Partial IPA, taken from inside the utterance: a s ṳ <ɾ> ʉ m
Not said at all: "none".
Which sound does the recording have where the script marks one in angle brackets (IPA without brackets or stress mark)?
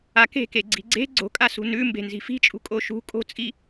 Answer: n